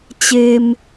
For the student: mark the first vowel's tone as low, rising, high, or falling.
low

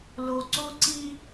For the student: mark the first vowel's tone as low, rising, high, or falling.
low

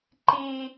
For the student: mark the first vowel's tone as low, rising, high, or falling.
high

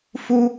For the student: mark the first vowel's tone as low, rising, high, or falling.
high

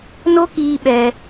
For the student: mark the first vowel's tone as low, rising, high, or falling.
high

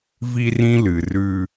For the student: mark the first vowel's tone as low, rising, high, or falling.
high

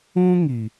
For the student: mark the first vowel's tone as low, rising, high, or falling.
high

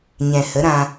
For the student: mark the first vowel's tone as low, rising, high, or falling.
low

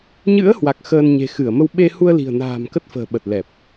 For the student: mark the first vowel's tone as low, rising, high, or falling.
rising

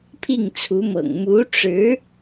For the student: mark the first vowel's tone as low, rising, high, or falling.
falling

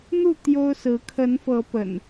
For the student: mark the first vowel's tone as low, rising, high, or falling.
falling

